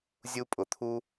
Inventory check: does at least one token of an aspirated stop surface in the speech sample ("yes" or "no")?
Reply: yes